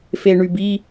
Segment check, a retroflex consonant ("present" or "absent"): present